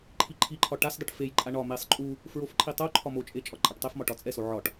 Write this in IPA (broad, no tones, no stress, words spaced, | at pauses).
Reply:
ǃʰiǃʰiǃʰɒ ʈasdˤiʈ fejǃʼa ɳɒ mesˤ ǃʼu | fɹofǃʰi tˤo ǃʰɒmot͡ʃʼe t͡ʃʼɒǃʼaʈtˤefmɒ ʈɒt͡sʼɛso ʕɒʈ